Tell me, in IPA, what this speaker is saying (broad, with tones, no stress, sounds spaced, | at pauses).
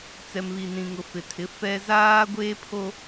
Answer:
t͡s ɛ˨ m β i˨ n ĩ˨ ŋ ʊ˨ f ɪ˨ tʰ ɪ˨˦ f ɛ˦ z aː˦ ɡʷ eː˦ pʰ o˦